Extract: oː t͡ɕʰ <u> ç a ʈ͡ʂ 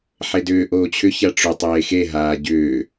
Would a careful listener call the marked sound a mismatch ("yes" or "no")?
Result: yes